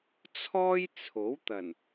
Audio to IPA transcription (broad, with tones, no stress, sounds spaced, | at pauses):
t͡sʰ ɔː˥ j t͡sʰ o˨˥ w t̪ ɐ˨˩ n